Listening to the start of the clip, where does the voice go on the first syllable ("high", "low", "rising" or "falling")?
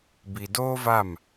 low